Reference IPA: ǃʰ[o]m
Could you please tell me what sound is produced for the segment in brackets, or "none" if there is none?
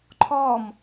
ɔ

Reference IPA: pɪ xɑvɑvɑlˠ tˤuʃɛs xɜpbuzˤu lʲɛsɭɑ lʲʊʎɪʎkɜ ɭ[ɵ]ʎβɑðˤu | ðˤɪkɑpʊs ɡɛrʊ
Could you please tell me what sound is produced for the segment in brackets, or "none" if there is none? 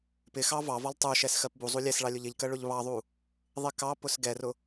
ʊ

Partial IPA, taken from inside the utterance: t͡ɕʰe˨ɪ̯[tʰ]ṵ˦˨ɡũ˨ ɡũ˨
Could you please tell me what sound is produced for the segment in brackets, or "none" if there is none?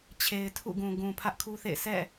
tʰ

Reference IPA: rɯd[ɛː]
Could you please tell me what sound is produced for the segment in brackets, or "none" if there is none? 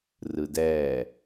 ɛː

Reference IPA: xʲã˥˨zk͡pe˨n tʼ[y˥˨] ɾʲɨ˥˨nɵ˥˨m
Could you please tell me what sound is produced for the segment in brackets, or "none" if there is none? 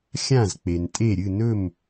e˥˨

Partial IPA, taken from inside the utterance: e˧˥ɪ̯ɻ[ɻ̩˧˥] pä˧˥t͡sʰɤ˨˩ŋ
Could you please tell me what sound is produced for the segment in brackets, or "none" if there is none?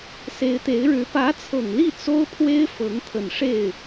ɻ̩˧˥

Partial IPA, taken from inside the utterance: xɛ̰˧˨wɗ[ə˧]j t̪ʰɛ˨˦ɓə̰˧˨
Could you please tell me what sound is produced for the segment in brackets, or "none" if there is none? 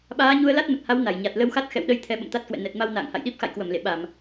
ə˧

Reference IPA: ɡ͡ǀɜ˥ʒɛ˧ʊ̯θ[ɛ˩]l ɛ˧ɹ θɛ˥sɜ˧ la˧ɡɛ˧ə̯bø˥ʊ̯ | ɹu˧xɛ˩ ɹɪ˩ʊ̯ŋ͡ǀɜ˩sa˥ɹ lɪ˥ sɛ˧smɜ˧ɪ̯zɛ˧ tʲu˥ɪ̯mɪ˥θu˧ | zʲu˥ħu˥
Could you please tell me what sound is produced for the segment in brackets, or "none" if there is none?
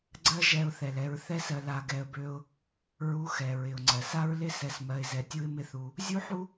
ɛ˩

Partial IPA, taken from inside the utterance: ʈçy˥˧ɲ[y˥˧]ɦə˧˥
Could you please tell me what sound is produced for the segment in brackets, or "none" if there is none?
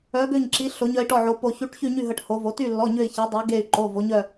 y˥˧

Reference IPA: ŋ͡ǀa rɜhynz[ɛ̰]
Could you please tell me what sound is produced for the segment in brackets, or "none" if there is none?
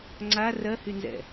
ɛ̰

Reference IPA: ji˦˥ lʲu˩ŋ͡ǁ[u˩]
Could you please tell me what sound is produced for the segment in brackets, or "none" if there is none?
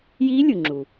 u˩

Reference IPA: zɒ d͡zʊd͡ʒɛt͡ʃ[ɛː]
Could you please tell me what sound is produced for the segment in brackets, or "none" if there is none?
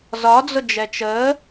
əː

